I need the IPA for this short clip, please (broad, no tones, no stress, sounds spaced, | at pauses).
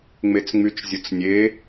ŋ͡m e t͡s ŋ͡m y t͡ʃ zʲ ʊ t͡s nʲ e